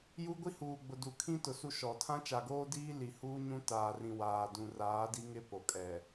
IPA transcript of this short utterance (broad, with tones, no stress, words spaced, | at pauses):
ju˦ ɡʷi˦huː˨ɡ͡bʊ˨ du˨kʰĩ˦ tʊ˨su˦ ʃɔ˨ tʰã˦t͡ʃa˨ɡoː˦diː˦ li˨ huː˦ɲũ˦taː˨rĩ˨ waː˨dũ˨ raː˨˦di˦ŋɪ˦ po˨kʼɛ˨